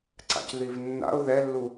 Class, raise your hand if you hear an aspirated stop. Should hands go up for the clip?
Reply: no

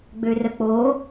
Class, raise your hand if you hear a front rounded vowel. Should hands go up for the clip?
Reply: yes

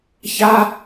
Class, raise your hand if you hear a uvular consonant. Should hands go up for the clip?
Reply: no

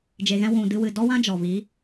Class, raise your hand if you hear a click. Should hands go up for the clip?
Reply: no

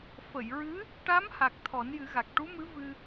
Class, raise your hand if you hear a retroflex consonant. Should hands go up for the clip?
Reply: yes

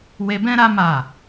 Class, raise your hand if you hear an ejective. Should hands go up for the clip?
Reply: no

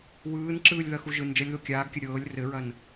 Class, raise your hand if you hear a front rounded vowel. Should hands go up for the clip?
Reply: no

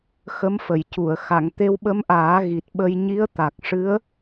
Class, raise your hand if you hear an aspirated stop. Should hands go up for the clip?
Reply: no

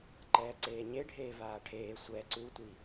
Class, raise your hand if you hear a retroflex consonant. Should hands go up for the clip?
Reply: yes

